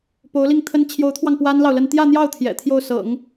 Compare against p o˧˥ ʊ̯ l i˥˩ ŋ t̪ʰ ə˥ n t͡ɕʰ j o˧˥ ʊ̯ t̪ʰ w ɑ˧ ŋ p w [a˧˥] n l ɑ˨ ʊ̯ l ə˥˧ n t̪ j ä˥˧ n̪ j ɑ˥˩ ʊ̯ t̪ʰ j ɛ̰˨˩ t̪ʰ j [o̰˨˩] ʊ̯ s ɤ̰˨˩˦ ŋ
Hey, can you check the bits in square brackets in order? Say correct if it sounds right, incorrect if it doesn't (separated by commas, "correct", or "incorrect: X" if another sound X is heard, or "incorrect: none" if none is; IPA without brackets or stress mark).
incorrect: a˥, incorrect: o˥˩